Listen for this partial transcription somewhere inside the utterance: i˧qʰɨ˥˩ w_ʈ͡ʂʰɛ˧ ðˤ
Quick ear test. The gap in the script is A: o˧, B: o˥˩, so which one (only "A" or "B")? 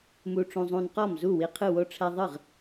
A